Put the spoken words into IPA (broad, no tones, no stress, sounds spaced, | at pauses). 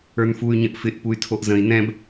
ə˞ n f u y̯ ɲ ə̃ ʔ f ɪ ʔ p u y̯ tʰ o ʔ z ə̃ i̯ n ɛ̃ b